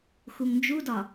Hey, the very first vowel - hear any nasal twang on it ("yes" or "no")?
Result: no